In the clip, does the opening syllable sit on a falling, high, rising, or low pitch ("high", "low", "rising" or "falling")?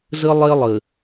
high